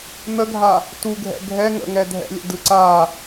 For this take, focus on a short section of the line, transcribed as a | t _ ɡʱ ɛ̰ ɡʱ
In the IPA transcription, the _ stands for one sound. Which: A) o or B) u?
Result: B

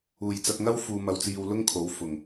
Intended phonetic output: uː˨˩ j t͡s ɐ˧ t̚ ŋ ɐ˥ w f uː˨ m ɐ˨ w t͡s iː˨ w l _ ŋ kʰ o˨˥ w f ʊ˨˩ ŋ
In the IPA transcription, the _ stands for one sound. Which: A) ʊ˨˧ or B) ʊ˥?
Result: B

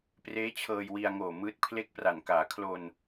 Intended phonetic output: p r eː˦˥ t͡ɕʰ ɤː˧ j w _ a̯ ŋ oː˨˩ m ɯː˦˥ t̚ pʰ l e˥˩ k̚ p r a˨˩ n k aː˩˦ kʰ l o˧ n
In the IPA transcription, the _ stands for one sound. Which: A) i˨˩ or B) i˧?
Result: B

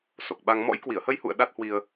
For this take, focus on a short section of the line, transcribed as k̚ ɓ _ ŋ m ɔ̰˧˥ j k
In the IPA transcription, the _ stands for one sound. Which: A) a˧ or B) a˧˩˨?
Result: A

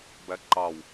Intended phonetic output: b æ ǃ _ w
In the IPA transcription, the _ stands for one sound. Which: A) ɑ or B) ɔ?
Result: A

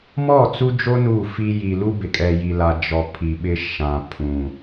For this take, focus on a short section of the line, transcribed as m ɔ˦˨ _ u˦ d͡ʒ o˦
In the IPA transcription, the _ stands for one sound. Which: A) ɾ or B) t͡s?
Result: B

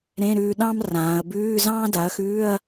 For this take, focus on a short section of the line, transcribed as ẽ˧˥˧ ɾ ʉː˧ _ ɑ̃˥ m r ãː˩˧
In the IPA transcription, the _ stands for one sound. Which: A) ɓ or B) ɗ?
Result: B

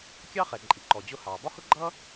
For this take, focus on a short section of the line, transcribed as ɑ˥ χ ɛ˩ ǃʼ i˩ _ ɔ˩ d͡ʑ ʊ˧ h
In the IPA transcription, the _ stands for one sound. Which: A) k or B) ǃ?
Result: B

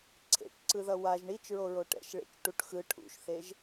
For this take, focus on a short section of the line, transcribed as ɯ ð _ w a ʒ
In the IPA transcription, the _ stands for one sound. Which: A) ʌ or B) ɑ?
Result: A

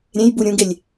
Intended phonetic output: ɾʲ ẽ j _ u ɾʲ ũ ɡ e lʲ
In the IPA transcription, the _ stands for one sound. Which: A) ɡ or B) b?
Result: B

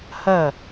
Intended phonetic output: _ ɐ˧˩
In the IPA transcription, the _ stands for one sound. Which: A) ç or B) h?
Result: B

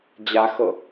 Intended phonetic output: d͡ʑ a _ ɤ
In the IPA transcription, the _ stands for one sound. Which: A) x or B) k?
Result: A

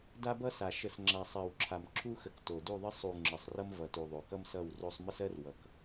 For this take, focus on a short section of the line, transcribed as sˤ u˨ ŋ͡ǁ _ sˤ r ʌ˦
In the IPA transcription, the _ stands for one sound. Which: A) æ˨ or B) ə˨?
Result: B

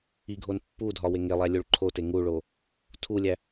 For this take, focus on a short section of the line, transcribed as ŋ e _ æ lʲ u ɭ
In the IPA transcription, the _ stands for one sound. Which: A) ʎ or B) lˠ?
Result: B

